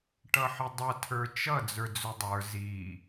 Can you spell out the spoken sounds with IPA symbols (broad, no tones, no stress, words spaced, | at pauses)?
ʈʌħɪdˤʌ tʰə˞t͡ʃʌ d͡zə˞d͡zʊdˤə˞ zi